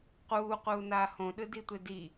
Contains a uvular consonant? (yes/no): yes